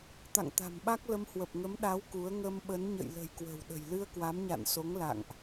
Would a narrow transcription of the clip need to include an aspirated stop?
no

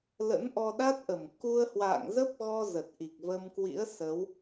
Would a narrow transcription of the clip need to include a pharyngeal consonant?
no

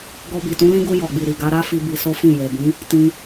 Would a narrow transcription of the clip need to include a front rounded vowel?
no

